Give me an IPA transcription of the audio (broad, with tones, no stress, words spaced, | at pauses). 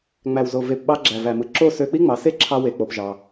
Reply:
ŋ͡mæ˨wzo˨ ve˨pɓɑ˧ ɡ͡ǁæ˨væ˨mɯ˨ ǁo˦˨sø˧ k͡pi˦ŋ͡mɑ˨˦se˦ ǁʰɑ˧we˨ k͡po˧pʒɑ˧